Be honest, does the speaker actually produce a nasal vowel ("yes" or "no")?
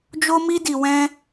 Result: yes